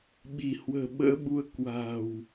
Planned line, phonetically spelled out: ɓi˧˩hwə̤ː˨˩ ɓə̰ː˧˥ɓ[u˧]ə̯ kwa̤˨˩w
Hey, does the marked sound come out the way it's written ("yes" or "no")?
yes